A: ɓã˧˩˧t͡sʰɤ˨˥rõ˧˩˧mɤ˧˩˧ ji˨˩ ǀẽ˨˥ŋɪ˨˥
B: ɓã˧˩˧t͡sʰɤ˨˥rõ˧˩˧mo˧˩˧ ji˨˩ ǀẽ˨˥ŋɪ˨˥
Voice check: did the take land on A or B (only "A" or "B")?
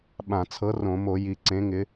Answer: B